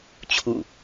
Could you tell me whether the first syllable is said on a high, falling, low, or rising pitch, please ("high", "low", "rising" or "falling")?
falling